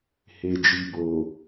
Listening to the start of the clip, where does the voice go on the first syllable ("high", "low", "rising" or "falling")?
low